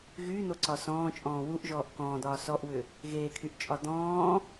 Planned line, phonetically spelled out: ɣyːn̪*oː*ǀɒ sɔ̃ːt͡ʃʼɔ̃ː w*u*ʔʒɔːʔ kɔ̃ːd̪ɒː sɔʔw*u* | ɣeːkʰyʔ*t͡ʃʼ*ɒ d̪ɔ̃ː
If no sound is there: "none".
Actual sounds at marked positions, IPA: o, u, ʏ, t͡ʃʼ

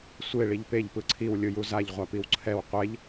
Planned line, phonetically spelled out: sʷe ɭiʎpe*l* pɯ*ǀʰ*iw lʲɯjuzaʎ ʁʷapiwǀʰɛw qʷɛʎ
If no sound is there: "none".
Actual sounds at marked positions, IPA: ʎ, ǀʰ

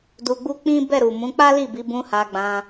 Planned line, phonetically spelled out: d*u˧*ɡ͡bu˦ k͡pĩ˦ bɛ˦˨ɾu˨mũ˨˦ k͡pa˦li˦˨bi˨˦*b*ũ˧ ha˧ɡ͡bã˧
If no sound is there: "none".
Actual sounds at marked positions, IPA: u˧, b

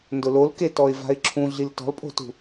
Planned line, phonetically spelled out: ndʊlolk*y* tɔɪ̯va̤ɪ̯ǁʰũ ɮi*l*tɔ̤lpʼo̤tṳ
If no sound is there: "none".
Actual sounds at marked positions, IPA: e, l

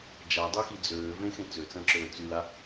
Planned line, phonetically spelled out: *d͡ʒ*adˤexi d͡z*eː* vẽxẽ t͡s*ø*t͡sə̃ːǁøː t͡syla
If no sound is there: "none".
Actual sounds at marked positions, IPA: d͡ʒ, øː, ø

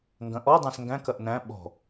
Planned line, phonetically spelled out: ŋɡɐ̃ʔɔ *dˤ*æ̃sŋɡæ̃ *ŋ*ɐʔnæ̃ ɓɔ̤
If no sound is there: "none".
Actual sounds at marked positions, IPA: dˤ, k

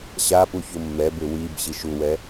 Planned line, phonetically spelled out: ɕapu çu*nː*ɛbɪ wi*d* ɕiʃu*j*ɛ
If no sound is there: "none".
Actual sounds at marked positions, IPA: mː, b, w

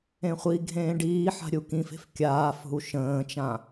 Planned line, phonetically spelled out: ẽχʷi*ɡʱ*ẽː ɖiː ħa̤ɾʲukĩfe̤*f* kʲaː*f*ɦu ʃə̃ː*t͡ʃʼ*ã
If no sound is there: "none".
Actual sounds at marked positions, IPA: ɡʱ, f, f, t͡ʃ

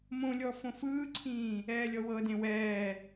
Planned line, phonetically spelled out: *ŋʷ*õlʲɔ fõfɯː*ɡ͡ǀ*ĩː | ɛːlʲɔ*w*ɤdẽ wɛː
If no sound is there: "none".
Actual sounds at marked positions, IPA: m, ǀʰ, w

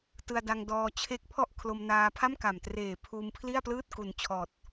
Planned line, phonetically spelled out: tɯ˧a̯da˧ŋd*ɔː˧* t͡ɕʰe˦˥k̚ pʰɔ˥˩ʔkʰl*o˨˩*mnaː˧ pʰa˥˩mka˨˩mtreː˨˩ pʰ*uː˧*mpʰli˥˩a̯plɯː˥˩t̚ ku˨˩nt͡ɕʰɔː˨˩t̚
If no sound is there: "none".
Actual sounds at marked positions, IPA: ɔː˧, o˧, uː˧

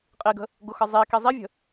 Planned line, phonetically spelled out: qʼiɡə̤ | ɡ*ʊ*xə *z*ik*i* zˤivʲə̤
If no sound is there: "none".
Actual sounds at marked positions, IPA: ʊ, zˤ, i

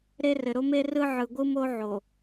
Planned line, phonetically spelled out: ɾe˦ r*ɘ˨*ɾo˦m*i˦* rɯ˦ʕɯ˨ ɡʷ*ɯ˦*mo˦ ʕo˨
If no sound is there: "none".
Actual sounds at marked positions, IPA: ɘ˨, e˦, ɯ˦

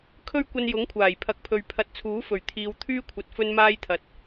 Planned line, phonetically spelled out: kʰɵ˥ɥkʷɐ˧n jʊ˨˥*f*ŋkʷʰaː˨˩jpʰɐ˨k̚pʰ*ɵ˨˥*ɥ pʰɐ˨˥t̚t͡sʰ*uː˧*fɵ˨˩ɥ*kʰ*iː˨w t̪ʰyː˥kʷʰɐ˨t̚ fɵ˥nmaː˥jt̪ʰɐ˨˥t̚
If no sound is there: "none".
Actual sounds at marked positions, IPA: none, ɵ˨, uː˨˥, t̪ʰ

